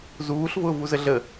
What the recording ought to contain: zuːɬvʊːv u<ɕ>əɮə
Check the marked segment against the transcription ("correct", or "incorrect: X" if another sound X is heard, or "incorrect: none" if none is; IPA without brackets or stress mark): incorrect: z